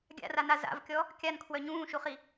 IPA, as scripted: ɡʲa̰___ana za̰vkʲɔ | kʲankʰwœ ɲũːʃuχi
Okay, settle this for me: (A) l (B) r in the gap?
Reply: B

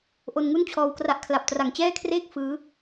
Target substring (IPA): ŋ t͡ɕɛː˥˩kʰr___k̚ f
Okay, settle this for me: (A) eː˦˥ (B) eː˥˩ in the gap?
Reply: B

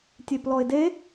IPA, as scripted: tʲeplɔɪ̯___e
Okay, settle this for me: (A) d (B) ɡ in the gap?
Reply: A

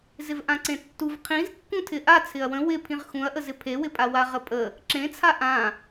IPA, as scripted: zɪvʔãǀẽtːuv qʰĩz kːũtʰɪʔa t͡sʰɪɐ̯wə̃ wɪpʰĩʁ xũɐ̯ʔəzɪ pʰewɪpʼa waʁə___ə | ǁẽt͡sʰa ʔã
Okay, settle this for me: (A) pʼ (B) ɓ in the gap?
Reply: A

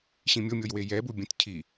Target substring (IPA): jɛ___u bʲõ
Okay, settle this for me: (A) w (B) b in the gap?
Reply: B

